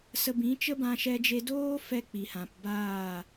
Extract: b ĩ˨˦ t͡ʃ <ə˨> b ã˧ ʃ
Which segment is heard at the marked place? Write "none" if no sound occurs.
ə˦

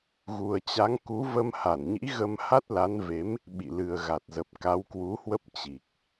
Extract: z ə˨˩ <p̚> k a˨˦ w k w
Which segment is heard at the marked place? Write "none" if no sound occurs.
p̚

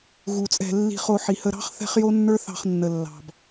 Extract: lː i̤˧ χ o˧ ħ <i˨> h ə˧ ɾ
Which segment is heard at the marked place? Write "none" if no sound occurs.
i˨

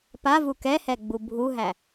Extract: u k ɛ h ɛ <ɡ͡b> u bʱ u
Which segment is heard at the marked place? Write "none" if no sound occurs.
ɡ͡b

